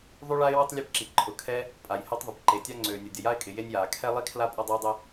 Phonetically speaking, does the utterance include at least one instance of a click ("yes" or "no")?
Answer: yes